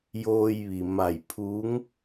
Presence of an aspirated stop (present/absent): present